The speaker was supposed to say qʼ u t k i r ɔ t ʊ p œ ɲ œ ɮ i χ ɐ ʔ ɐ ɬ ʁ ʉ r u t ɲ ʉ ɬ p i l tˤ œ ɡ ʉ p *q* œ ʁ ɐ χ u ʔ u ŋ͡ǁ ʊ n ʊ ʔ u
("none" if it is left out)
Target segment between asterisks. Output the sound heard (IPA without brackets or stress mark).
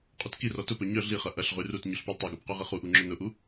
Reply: q